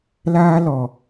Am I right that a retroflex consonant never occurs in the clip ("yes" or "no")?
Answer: yes